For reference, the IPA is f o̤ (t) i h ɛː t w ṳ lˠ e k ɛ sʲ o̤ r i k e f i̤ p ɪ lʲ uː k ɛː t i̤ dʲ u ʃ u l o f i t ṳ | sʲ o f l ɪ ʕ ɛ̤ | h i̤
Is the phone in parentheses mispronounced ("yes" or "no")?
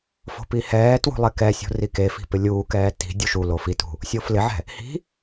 yes